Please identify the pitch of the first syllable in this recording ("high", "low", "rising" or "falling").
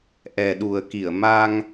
low